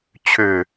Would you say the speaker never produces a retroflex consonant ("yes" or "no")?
yes